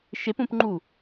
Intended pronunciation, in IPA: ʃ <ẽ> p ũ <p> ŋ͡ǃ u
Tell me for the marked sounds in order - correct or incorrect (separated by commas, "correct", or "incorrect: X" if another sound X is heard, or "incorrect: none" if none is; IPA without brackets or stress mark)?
incorrect: e, correct